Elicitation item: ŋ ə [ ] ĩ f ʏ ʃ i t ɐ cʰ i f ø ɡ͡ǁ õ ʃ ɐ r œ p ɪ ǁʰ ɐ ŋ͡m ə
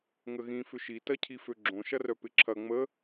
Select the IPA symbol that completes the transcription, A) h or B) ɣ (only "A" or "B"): B